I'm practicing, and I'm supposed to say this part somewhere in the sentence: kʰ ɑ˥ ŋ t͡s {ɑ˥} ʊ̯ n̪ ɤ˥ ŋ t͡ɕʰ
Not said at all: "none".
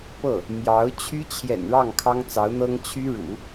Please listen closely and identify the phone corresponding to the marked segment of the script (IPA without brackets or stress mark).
ɑ˧˥